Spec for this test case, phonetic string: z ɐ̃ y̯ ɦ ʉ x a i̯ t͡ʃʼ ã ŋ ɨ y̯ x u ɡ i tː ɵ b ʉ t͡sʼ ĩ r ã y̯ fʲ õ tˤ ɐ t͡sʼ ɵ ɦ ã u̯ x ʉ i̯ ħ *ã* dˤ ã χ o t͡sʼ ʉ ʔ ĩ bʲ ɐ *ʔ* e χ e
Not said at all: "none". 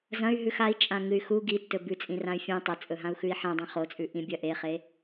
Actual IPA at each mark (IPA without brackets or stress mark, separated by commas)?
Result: ã, ʔ